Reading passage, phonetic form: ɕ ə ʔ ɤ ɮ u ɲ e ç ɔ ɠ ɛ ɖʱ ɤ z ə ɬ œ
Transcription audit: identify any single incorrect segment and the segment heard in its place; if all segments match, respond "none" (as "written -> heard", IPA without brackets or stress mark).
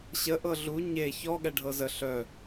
none